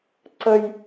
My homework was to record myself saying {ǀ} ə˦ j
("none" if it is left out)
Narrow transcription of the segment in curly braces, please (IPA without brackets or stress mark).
ǀ